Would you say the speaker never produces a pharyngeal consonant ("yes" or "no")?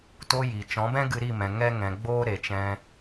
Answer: yes